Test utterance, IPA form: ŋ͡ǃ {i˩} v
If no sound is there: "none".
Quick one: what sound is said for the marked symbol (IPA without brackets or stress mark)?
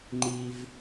i˩